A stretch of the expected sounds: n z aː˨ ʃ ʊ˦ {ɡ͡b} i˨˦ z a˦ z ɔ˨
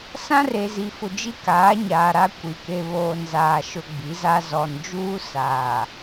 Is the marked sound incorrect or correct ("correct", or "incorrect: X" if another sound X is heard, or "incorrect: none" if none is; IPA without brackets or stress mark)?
correct